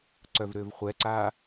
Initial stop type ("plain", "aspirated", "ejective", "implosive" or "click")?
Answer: click